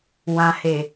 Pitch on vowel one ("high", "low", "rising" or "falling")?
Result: low